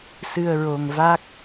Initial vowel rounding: unrounded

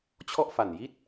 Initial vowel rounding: rounded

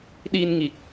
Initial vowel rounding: unrounded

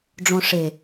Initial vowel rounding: rounded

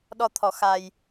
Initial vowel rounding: rounded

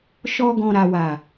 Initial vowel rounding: rounded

